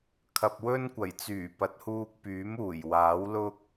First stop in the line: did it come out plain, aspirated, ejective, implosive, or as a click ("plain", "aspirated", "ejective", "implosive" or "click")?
aspirated